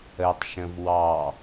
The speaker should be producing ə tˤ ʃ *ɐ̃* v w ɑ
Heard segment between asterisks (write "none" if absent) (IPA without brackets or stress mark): ə̃